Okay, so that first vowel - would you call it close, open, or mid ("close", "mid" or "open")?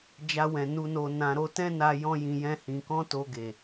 open